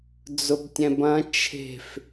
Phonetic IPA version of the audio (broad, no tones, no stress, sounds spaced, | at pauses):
d͡z ʊ b tʲ ɛ̃ b ɐ̃ t͡ʃʰ e̤ f